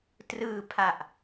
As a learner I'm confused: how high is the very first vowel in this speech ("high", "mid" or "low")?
high